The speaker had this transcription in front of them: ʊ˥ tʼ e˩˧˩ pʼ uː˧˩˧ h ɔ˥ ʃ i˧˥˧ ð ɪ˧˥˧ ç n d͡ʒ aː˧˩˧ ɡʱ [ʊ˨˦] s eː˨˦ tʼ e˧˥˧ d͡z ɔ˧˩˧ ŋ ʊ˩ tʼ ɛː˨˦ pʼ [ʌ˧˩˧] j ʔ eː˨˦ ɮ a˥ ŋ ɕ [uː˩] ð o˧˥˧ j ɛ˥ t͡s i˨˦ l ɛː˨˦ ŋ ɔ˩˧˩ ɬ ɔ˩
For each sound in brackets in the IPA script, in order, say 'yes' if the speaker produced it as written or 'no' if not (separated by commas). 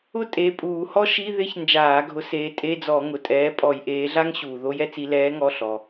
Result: yes, no, yes